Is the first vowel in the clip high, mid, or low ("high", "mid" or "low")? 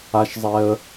low